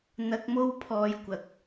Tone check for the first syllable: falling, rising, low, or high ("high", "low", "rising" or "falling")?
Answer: low